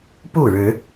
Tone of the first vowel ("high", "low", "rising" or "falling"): falling